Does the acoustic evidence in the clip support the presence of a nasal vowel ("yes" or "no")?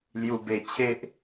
no